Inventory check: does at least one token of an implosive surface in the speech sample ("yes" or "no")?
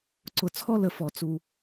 no